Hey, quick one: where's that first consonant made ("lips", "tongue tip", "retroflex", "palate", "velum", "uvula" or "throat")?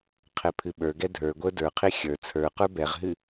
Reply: uvula